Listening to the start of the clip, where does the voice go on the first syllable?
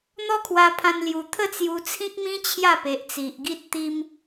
high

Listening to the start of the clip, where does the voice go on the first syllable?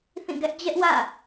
falling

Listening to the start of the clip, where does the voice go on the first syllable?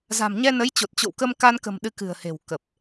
low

